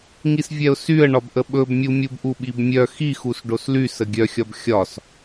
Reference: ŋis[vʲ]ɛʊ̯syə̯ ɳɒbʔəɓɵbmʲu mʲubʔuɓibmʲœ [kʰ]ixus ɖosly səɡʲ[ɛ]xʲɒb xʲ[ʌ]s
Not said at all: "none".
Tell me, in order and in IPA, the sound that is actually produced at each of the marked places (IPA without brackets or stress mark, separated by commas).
vʲ, x, œ, ɒ